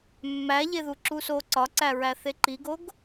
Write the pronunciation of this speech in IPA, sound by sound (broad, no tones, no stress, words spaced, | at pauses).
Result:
mːæʎeðu ǁuso ǀɒǀæɹæ θeǃiɡoɡ